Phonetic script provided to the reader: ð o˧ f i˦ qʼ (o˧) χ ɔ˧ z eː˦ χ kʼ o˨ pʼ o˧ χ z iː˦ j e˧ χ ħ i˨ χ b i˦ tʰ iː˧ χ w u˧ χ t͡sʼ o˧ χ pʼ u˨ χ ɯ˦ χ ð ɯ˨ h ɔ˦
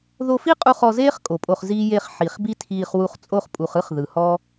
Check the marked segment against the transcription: incorrect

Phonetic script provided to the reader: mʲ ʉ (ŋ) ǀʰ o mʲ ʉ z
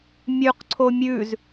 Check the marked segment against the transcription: incorrect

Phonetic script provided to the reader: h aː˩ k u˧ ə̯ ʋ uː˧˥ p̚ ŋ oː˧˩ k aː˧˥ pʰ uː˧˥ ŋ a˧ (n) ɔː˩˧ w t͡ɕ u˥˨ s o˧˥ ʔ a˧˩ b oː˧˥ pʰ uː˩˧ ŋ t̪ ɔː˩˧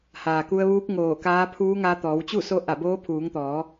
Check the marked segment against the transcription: incorrect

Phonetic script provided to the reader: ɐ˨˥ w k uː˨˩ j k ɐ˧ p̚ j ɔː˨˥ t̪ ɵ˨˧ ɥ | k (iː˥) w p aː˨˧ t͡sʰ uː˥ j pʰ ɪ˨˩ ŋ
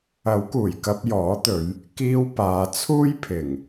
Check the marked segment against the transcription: correct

